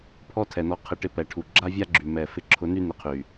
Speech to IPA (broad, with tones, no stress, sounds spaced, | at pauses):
pʰ ɔ˦ tʰ ɛ˨ n ɔ˧ qʰ ɪ˧ ʈ ɪ˧ p ɛ˨ ʈʰ u˨ ɡ͡ǁ a˦ vʲ a˦ ɡ͡ǁ y˨ m ɛ˨ f ɪ˧ ǁʰ ʊ˨˦ n y˦ n ɪ˧ qʰ y˨